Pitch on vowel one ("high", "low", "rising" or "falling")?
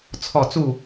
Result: falling